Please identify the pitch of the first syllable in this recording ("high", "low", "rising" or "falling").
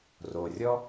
low